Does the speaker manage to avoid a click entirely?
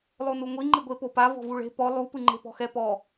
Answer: no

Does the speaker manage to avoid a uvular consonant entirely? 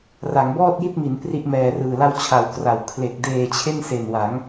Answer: yes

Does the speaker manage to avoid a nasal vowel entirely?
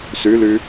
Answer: yes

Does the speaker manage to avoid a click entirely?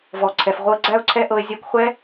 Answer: no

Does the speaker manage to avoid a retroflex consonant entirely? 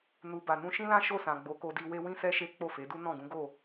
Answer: yes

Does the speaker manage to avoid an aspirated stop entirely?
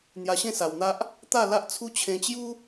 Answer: no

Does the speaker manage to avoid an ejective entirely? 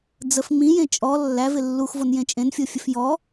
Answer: no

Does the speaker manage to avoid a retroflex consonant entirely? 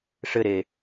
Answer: no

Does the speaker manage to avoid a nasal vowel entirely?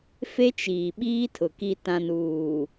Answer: no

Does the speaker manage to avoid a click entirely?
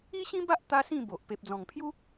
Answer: yes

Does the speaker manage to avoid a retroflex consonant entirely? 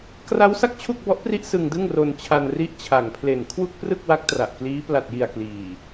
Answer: yes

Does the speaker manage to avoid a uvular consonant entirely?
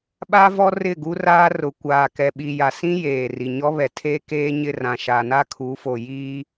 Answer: yes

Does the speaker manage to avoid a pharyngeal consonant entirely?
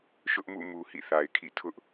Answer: yes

